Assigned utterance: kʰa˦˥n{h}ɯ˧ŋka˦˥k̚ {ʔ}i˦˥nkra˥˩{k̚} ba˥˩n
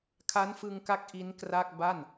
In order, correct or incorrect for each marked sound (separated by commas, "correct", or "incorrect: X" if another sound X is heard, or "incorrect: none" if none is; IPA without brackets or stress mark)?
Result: incorrect: f, correct, correct